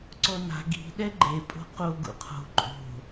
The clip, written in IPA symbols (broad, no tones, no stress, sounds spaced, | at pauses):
ǀ ɔ n a̤ ɡ i̤ ɗ ɛ ɡ͡ǃ e pʼ o̤ q o ɡ ṵ qʰ o̤ ǃʼ o̤